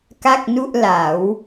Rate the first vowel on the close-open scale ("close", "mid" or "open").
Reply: open